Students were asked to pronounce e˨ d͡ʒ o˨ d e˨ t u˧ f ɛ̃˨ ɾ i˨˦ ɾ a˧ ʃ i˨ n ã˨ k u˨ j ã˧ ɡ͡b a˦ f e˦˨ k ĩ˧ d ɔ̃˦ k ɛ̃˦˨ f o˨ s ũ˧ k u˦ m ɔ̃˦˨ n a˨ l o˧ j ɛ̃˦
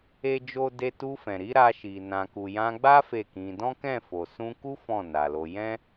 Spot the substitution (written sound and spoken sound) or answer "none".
m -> f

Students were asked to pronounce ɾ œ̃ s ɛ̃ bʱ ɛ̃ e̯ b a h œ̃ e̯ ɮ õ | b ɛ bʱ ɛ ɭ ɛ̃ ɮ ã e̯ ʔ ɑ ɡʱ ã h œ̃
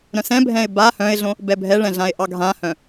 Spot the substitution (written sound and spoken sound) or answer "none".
none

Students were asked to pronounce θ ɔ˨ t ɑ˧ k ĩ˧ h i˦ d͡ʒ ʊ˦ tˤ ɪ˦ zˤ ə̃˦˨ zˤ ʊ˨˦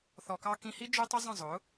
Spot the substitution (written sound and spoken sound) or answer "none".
t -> k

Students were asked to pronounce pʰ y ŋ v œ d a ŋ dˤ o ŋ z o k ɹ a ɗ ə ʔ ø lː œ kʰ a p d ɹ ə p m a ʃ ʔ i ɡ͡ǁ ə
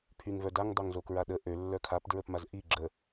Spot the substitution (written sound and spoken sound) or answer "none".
ʃ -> z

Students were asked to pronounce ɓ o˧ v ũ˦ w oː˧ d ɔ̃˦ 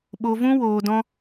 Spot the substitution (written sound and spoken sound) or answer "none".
none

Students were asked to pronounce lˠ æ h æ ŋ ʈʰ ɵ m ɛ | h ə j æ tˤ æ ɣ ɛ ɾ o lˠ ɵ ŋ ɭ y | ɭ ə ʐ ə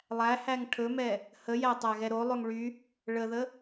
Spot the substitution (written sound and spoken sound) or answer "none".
ʐ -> ð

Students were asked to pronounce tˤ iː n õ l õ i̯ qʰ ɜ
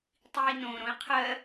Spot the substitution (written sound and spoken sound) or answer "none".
l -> ɾ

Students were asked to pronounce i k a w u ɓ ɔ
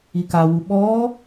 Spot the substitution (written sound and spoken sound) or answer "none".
none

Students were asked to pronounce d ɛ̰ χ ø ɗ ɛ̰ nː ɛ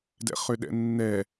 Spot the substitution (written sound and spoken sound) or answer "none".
none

